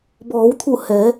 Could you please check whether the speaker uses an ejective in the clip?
no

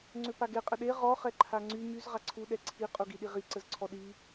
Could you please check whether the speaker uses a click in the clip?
yes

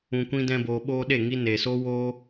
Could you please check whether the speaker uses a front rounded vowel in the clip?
no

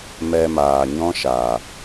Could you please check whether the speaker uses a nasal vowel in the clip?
yes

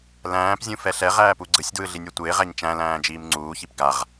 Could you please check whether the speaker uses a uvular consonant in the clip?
yes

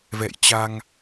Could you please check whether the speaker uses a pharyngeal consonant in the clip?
no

